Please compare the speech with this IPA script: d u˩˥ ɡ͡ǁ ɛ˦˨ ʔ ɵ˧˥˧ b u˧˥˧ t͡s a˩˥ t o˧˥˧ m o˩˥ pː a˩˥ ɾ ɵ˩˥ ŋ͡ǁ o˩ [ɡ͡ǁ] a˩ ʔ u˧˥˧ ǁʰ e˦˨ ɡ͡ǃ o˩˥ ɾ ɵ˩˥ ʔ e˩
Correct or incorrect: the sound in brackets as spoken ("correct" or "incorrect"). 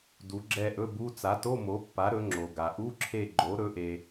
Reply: incorrect